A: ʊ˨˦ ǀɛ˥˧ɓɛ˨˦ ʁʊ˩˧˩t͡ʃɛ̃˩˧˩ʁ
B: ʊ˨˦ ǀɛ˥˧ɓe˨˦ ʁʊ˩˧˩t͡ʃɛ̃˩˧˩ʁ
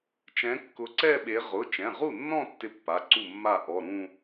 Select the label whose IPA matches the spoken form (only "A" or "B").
B